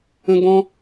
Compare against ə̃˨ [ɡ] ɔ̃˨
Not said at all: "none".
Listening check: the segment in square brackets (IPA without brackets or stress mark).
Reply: ɡ